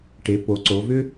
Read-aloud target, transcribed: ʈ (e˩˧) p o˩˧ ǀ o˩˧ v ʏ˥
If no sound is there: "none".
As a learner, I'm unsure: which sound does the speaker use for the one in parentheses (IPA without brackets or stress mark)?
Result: e˩˧